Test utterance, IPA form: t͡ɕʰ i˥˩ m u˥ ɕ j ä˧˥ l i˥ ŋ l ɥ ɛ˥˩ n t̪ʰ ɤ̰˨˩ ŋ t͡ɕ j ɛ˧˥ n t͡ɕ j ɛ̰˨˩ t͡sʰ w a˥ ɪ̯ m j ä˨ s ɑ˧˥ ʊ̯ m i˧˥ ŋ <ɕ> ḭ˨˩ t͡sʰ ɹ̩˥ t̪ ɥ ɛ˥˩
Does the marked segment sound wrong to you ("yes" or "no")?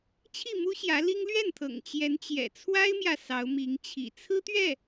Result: yes